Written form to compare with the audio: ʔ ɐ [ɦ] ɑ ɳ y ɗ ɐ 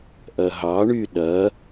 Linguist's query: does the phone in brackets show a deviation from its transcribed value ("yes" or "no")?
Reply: no